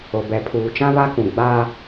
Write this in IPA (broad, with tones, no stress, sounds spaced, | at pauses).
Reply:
o˨ b ɛ˨ pʰ uː˨ t͡ʃ ã˦ β a˦ k ũ˨ ɡ͡b a˦